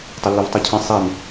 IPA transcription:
tˤʊlːivtˤɯcʰə̃ sˤin

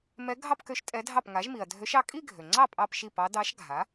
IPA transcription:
mɛ˧˥ɡʱɑ˥˧pkø˧˥ʃ tʼɛ˧˥dʱɑ˥˩p ŋa˩˥ʒmi˩ɐ̯dʱø˧˥ʃɑ˥˧ kʼi˥˧ɡʱø˩ŋ͡ǀɑ˥˩ pʼɑ˥˧pʃi˥˩pɑ˧˥ dɑ˧˥ʃ ɡʱa˩˥

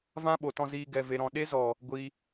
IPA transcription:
vã˦ɓo˨tɔ̃˧ ziː˧ɡɛ˨ ve˨ɾɔ̃˨ ɗe˦zɔ˨ | ɡʷiː˧

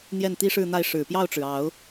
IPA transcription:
n̪jɛ˥˩nt̪i˥ʂɻ̩˥˧n̪a˥˩ɪ̯ ʂɻ̩˨˩pjɑ˥˩ʊ̯ʈ͡ʂɻ̩˩ ɑ˨˩˦ʊ̯

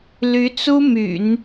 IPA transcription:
ly˧˥t͡su˥my̰˨˩˦n

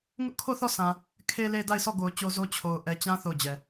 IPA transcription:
ŋʊ˦ʔkʰo˦˨θɔ˦˨sã˨ | kʰe˨le˨ da˦˨ɪ̯sʰɔ˦˨ɡo˨ʊ̯ t͡ɕo˦zo˦ t͡ɕʰo˨ʊ̯ ʔɛ˨t͡ɕã˦ θo˦˨ʊ̯d͡ʑɛ˨

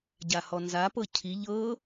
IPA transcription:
ɟahɔnzapɤ cʰi ʎɤ

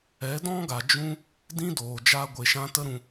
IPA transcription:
ɛ˨˦dɔ̃˦ɡa˨ d͡ʒũ˦ | dĩ˦doː˨ d͡ʒaː˦ɡʷe˧ʃã˦ tə˦ɾũ˧

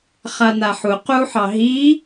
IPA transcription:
χan̪aħu quħɑ ɦi

